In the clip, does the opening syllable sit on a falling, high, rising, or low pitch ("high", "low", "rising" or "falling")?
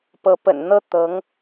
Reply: rising